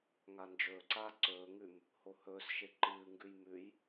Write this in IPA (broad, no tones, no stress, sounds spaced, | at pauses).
ŋ a n d͡ʒ ɵː ǀ aː ǀ ɵː ŋ ʉ m | h o h ɵː s ʃ e ǃ ɨː ŋ ɡ ʉ j m ʉ j